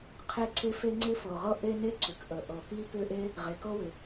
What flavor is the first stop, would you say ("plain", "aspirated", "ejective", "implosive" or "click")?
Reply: aspirated